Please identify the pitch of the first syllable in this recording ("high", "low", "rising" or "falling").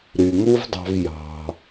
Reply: low